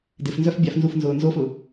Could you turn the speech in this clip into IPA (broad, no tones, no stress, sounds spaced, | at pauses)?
d ɪ f n z œ f bʲ a f n z u f n z ʊː n z o f ʊ